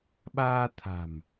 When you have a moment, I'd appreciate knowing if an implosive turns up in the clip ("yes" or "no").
yes